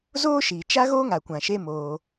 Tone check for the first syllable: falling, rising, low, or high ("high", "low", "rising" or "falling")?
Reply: high